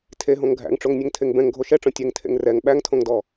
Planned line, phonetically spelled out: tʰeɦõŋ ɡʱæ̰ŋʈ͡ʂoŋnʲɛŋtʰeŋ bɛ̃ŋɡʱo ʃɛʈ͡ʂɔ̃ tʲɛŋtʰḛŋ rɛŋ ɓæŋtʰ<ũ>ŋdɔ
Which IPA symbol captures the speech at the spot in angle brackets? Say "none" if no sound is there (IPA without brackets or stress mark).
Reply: õ